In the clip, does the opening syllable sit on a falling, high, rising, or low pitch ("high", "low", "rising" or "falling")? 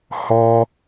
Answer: high